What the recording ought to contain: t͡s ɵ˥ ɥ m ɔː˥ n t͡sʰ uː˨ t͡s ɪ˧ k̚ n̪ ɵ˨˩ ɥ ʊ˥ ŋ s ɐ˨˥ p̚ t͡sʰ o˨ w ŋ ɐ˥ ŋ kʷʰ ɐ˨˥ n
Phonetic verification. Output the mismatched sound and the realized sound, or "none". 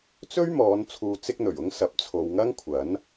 ɔː˥ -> ɔː˨˧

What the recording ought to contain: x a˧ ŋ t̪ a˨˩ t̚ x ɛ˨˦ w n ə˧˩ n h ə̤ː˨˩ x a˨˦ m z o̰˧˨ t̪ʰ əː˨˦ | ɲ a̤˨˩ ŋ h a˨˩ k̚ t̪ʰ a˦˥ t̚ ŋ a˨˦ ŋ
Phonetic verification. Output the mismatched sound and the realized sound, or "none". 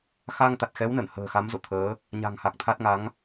none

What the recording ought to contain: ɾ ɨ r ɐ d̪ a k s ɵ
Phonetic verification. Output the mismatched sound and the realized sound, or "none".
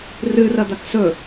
ɾ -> r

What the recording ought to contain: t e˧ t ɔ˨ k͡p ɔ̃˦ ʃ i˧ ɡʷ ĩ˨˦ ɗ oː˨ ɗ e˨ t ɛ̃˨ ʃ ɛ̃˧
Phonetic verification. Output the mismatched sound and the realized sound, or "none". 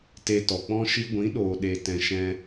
none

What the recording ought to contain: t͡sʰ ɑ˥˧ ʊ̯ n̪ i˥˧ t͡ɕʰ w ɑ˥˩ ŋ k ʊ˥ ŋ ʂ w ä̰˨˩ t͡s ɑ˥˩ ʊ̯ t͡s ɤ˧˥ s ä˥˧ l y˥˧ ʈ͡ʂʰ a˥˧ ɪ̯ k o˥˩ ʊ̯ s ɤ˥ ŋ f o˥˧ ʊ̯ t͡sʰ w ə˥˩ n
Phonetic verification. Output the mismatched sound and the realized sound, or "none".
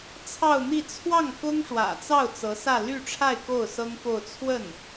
t͡ɕʰ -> t͡sʰ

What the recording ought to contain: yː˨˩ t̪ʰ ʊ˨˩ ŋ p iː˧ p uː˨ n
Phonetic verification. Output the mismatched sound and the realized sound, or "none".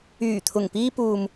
n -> m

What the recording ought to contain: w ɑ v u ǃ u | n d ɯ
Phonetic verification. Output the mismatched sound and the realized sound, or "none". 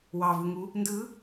ǃ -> ŋ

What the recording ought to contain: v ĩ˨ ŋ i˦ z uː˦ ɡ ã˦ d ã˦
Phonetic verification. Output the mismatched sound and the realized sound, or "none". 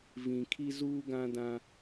ŋ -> kʰ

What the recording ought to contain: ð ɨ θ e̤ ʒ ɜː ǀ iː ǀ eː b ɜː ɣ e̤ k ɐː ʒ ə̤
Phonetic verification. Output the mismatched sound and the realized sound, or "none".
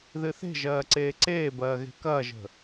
iː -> eː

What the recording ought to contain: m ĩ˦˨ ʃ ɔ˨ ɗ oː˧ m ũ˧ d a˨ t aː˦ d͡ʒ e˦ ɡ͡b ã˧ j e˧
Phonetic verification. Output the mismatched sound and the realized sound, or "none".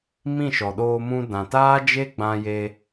a˨ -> ã˨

